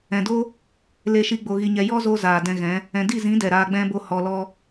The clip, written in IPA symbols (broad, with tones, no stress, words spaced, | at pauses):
ɛ̃˨do˦ | le˧ʃi˧ ɡ͡bo˧ɣi˧ɲɛ˧ jɔ˦zo˧ zaː˨dɛ̃˧ɣɛ̃˨˦ | ɛ̃˨di˦˨zĩ˨˦dɛ˨ ɾaː˧ɡ͡bɛ̃˦bo˦ hɔ˧lɔ˦